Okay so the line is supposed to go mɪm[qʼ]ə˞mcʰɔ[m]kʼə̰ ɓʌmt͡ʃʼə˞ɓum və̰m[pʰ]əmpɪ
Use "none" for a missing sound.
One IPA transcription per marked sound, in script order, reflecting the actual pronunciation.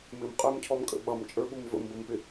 qʼ, m, b

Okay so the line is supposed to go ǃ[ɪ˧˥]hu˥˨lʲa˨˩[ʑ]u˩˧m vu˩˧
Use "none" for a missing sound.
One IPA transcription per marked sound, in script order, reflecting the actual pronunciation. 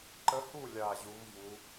ə˧˥, ʑ

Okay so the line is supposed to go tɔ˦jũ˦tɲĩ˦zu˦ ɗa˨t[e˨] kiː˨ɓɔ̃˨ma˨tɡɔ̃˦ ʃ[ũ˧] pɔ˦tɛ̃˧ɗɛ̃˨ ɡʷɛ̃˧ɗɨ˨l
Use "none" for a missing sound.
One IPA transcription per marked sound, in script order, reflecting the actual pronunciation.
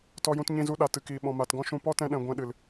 ɨ˨, ũ˧

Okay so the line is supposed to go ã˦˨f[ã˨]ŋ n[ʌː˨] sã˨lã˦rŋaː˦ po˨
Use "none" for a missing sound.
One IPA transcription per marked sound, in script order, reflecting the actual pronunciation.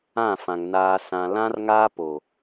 ã˨, aː˨

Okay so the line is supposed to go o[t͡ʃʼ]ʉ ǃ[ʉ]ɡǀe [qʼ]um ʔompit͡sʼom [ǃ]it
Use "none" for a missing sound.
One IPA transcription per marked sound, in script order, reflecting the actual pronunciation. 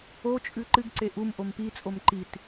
t͡ʃʼ, ɨ, ʔ, ǃ

